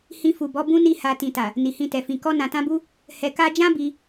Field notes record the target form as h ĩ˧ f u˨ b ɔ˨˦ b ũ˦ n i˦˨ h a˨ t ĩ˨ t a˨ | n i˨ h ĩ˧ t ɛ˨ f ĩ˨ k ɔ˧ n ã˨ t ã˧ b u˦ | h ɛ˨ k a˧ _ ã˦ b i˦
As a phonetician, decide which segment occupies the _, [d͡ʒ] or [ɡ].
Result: d͡ʒ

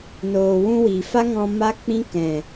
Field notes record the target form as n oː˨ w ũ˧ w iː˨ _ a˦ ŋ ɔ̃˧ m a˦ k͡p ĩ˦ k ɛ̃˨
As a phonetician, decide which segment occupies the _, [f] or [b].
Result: f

